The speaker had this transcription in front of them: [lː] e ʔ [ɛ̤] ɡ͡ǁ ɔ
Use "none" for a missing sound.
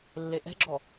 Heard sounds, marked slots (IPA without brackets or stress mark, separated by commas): lː, ɛ̤